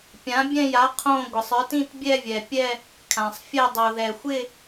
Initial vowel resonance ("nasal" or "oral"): nasal